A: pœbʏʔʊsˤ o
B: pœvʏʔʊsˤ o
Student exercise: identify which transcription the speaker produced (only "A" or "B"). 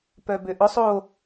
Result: A